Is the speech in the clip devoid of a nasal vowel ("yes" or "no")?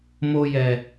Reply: yes